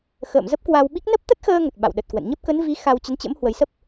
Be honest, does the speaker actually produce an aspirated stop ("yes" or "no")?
no